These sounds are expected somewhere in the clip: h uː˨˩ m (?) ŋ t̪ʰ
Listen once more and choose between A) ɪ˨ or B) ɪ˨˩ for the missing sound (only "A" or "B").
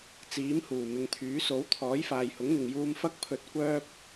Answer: A